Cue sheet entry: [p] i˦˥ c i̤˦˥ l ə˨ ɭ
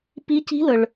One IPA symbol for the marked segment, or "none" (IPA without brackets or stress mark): p